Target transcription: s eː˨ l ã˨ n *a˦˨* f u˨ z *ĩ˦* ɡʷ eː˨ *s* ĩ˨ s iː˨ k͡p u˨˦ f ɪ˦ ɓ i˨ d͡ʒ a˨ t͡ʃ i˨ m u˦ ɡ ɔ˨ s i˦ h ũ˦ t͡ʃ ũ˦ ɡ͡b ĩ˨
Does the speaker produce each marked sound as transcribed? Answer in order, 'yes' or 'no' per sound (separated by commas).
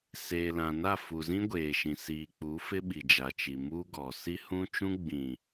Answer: yes, yes, no